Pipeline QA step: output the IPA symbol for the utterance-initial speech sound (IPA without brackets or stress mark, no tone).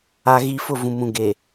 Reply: a